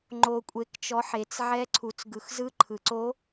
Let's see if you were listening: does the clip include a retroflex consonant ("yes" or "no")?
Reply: no